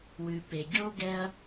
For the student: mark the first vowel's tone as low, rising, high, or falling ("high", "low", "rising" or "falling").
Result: low